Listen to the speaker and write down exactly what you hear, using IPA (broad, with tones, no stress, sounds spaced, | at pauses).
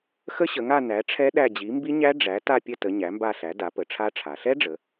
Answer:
x ə˦˥ ɕ ə˩˧ ŋ a˦˨ n æ˩˥ ʈ͡ʂʰ ɛ˦˥ ɗ æ˦˨ d͡ʑ i˩˥ m b i˦˥ ɲ æ˦˥ ɖ͡ʐ æ˩˥ t a˦˨ pʲ ə˦˨ t ə˩˧ ɲ æ˩˥ m b a˦˨ ɬ æ˩˥ d a˩˥ p ə˩˧ ʈ͡ʂʰ a˦˥ ʈ͡ʂʰ a˩˧ ɬ ɛ˦˥ ɖ͡ʐ ə˩˧